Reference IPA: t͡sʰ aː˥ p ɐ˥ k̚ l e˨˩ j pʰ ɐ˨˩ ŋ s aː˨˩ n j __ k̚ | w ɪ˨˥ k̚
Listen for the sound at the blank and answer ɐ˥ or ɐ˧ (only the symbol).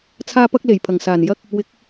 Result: ɐ˥